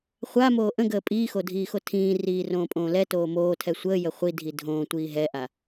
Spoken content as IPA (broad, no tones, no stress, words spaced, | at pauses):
χʷamoː ʔə̃ɡəː pʼiːxodʱiːxo tʰĩː riːrõːpʼõːlɛ toːmoː tʰɛsʷəː jəχʷi dʱidʱõː tʷiːɦɛʔa